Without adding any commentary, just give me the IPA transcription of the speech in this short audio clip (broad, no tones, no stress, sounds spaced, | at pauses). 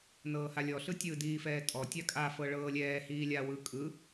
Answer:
n ɤː h a lʲ ɔ ɬ ɯ tʲ ɯ d iː f ɛː tʼ ɔ tʲ a kʼ a f ɤ ɭ ɤː lʲ ɛː h iː lʲ a w ɯ kʼ ɯ